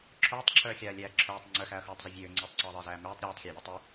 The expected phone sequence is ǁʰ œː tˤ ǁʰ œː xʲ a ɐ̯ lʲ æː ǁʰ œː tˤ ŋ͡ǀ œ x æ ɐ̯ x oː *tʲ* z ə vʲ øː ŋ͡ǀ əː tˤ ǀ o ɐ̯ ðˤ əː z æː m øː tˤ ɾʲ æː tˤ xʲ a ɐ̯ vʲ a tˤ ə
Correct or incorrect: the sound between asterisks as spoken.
incorrect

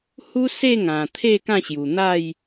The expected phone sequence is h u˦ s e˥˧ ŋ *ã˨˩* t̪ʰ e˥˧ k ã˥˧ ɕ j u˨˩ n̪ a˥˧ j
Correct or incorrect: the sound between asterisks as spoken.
correct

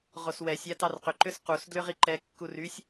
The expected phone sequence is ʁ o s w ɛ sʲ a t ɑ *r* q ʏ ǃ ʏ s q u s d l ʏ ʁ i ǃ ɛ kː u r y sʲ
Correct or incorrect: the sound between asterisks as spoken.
correct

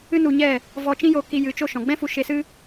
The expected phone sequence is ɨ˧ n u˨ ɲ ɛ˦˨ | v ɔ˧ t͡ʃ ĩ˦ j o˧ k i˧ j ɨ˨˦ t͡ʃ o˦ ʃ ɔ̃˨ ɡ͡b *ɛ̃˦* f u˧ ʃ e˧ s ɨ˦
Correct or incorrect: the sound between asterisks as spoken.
correct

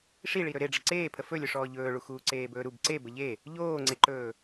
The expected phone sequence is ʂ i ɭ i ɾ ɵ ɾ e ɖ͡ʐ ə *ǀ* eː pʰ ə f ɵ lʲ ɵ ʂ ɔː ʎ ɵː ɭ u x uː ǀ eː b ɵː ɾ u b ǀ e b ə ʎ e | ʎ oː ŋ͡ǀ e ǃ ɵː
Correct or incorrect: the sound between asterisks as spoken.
correct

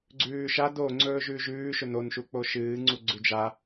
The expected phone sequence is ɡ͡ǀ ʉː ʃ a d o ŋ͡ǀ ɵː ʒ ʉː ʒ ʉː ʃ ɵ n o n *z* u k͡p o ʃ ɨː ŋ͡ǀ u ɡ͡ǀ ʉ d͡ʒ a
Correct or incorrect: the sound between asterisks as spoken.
incorrect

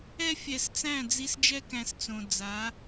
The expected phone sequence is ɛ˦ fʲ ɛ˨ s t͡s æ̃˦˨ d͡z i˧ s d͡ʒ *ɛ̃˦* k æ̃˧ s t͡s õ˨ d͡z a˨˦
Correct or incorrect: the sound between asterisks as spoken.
incorrect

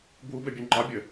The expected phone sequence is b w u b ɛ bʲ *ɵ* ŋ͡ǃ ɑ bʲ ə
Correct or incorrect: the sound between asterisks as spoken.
correct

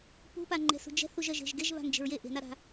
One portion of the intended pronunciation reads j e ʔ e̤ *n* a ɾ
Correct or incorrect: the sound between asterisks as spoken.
correct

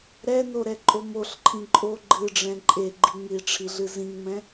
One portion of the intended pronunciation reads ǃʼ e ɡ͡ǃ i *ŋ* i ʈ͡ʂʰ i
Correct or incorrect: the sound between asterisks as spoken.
correct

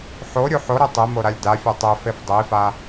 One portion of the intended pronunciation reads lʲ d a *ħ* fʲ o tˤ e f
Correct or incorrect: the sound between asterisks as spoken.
incorrect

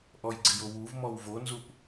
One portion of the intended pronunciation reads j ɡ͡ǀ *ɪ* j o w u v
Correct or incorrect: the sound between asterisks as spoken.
correct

